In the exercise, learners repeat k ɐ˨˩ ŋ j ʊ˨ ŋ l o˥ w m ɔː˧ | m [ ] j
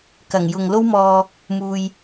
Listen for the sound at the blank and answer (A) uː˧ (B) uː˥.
A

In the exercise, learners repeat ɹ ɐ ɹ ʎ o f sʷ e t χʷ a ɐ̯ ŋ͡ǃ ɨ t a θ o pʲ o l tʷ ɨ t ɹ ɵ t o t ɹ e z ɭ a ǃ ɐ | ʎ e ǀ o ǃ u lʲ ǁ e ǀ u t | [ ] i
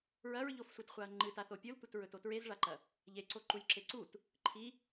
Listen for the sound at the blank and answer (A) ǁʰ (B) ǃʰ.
B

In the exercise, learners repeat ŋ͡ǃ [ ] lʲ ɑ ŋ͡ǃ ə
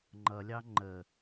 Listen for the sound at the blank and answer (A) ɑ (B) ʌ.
B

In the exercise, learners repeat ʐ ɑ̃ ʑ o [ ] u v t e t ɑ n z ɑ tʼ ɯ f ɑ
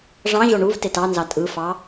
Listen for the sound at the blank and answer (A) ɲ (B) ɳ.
B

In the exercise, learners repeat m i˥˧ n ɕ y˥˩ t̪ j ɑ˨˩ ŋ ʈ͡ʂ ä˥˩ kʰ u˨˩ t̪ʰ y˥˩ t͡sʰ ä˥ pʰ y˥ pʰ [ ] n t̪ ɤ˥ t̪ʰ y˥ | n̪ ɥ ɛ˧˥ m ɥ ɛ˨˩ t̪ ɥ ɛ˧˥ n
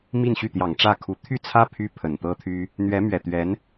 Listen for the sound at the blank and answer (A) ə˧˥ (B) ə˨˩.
B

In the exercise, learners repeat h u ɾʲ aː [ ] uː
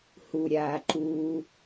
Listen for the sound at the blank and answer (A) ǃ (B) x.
A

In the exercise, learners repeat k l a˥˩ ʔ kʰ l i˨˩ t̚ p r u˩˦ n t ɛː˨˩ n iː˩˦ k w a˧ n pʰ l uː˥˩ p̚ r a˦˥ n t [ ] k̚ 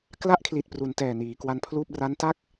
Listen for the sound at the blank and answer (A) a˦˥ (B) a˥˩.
B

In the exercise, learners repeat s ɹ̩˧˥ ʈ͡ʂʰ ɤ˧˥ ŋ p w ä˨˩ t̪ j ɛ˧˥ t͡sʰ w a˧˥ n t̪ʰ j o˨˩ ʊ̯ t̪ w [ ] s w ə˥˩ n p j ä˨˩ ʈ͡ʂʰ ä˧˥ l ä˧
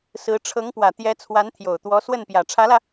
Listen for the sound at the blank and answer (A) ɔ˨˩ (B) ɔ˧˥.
B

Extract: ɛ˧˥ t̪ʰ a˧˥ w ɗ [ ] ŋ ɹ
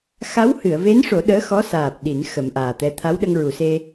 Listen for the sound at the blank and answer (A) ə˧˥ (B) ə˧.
B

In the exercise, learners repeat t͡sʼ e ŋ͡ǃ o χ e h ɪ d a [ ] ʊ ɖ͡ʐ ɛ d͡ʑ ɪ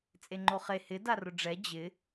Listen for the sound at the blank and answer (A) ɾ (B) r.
B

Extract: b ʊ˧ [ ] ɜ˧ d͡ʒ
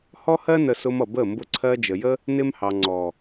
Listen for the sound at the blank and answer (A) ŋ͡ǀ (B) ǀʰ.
B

